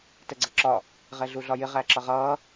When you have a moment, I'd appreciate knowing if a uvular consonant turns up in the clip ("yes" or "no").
yes